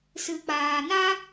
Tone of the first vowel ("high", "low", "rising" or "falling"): low